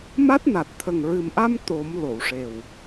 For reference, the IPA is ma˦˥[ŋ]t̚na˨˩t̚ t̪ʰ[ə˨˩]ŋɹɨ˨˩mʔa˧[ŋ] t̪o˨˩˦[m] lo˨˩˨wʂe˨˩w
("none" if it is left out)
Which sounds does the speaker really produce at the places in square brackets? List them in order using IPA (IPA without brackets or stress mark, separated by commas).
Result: none, ə˨˩, m, m